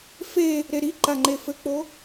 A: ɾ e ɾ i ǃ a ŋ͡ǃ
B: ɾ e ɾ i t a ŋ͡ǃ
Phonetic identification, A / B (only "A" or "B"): A